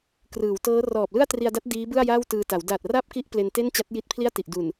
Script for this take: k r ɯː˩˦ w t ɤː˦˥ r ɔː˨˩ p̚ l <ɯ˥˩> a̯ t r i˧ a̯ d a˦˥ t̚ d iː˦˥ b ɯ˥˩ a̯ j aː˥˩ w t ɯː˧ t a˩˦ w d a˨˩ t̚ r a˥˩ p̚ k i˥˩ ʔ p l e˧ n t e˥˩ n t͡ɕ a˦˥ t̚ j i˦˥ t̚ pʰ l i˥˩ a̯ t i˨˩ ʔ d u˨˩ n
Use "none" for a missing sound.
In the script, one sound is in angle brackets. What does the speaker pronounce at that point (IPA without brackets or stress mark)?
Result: ɯ˥˩